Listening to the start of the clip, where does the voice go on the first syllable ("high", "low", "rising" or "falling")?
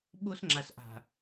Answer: high